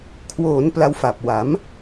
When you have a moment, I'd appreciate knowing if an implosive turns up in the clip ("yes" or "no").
no